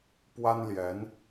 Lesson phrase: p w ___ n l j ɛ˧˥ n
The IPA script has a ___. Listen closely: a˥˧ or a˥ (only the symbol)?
a˥